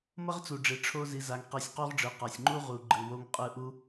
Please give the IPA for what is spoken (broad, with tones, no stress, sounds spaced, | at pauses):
m ʌ˦ ʁ t͡s u˨ ɖ͡ʐ e˨ ʈ͡ʂʰ o˦ z i˧ z a˧ ŋ q e˦˨ sʲ q o˦ ʁ ɖ͡ʐ ɯ˨ q a˨ sʲ ŋ͡ǃ u˦ ʁ u˨ ɡ͡ǃ ɯ˨ w o˧ ŋ qʼ ɯ˧ ʔ u˦